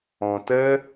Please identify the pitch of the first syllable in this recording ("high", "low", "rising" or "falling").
low